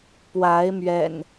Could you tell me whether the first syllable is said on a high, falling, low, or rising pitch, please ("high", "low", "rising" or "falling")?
rising